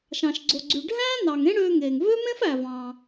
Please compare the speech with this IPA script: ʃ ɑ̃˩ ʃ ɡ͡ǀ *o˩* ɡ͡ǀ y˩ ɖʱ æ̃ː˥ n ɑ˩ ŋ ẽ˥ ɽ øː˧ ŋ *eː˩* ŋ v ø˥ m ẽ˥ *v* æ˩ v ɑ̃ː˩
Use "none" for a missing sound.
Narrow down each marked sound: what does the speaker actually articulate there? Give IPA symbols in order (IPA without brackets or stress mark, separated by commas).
o˩, eː˩, f